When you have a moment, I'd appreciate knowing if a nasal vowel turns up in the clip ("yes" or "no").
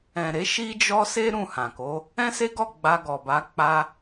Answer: yes